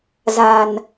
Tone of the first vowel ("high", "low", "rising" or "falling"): low